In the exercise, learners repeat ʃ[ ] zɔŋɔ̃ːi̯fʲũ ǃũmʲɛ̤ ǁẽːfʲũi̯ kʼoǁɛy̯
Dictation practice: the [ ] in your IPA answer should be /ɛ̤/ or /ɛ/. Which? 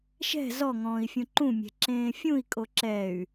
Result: ɛ̤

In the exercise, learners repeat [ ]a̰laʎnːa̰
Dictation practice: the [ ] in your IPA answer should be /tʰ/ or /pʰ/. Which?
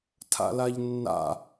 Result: tʰ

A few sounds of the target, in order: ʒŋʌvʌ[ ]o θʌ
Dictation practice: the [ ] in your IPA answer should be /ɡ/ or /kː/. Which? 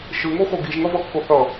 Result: kː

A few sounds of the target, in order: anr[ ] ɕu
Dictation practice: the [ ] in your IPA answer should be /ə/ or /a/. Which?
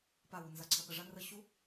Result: ə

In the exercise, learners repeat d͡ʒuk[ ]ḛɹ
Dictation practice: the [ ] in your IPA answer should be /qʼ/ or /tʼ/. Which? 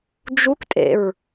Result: tʼ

